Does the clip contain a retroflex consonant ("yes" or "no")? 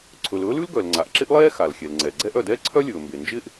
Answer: no